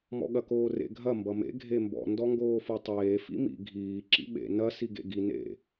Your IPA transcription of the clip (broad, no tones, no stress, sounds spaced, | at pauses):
m ɔ̰ ɠ ɐ k oː r ḛ ɡʱ ɐ m b ʌ m ḛ ɡʱ e m b ɔ̰ n d ɔ ŋ ɡ oː f o tˤ eː f ḭ m ḭ ɡʱ iː ǁ ḭ ɓ ḛ n ɐ s i ɡ ḛ ɡ i n ḛ